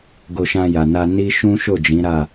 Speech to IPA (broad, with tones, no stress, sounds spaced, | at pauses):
ɡ o˧ ʃ ã˧ j a˨ n a˧ n i˦ ʃ ũ˦ ʃ o˦˨ d͡ʒ ĩ˨˦ ɾ a˦˨